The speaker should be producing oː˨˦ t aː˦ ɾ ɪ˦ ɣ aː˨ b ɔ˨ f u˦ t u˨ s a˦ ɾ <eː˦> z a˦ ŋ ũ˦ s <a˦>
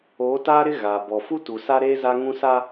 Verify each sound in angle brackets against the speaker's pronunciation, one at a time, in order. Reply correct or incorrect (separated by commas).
correct, correct